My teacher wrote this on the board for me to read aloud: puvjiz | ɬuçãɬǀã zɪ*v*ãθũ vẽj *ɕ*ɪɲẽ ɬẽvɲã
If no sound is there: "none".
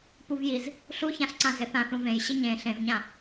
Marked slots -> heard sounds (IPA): θ, ɕ

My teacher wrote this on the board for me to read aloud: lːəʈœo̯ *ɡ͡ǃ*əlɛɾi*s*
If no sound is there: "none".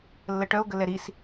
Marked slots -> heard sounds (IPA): ɡ, s

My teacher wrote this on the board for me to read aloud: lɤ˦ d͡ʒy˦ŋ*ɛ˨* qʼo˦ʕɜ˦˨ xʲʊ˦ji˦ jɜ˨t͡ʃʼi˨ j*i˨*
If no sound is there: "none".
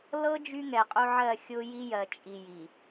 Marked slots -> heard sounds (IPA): ɛ˨, i˨

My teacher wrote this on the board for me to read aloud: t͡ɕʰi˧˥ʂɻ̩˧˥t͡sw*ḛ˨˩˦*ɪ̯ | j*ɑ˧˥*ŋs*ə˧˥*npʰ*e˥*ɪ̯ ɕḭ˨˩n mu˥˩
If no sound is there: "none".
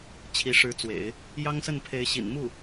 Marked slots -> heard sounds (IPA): ḛ˨˩˦, ɑ˥, ə˥˩, e˧˥

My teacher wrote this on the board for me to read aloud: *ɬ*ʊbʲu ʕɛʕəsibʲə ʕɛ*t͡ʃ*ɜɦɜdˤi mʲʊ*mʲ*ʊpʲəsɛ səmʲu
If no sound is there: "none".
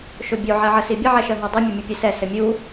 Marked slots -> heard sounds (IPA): ʃ, ʃ, mʲ

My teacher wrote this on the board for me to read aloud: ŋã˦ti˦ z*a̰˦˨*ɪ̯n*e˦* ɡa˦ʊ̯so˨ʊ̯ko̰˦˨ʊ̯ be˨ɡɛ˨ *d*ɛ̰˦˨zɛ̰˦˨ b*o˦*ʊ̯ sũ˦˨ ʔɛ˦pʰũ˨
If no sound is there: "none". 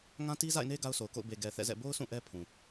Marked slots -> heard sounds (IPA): a̰˦˨, e˦, θ, o˦

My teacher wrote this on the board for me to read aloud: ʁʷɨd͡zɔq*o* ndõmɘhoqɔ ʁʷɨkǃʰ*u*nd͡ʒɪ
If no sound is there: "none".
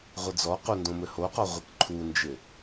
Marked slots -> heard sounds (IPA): u, u

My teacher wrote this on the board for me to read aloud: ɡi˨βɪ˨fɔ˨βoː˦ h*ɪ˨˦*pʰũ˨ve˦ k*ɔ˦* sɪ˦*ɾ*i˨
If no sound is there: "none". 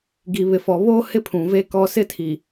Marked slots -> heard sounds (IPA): ɪ˦, ɔ˦, tʰ

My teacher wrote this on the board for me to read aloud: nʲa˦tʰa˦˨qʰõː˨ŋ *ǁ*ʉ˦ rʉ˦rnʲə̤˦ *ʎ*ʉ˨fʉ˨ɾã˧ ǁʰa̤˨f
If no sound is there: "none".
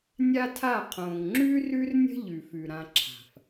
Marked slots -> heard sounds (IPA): ŋ͡ǁ, ʎ

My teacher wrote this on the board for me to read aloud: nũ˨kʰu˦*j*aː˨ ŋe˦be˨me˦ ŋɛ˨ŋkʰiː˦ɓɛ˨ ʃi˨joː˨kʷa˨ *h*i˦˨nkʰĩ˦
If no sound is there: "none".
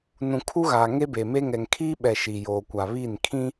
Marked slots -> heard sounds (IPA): ɣ, β

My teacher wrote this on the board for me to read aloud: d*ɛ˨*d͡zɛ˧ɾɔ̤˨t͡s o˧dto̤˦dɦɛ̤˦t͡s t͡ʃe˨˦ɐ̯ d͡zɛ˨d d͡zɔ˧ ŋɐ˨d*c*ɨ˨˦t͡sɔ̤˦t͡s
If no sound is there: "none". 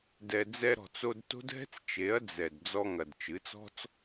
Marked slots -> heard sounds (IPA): ɛ˨, t͡ʃ

